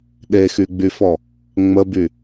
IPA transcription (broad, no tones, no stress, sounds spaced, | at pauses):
ɗ e x y ɡ͡b y f ɔ | ŋ͡m ə b y